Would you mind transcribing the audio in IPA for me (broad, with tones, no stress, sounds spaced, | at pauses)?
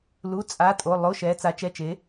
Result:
l u˩˧˩ t͡sʼ a˩˧˩ tʼ o˩˧˩ lˠ o˩˧˩ ʃ ɛ˩˧ t͡s a˩˧ t͡ʃ ɛ˩˧˩ t͡ʃ e˩˧